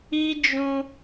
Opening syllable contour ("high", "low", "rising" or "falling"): high